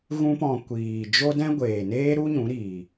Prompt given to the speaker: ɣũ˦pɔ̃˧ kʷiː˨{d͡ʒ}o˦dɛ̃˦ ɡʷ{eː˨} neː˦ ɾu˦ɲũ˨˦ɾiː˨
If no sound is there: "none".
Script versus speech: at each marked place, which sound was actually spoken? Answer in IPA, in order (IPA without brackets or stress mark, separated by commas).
d͡ʒ, eː˨